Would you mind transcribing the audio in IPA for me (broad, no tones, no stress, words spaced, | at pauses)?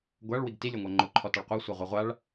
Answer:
ɡʷaɭwiɡ tilʲɔŋʷa ŋ͡ǃʊ ǃʰɔtɑɭqʷa sʷaʁʷɤʁʷaɭ